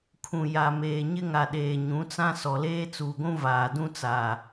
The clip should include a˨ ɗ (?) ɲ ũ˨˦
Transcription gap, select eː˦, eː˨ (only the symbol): eː˨